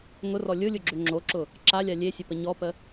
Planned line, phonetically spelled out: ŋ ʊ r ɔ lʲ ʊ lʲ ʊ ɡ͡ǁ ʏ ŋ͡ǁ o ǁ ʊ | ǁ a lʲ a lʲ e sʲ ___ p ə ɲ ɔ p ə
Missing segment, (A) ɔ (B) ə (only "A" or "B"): B